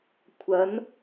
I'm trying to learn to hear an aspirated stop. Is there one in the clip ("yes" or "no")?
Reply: yes